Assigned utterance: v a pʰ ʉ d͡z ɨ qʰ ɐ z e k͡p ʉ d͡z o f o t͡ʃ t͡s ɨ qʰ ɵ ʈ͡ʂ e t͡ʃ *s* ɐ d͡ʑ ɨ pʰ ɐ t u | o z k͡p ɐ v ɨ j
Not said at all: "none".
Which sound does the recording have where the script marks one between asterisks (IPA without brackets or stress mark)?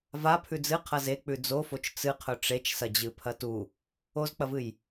s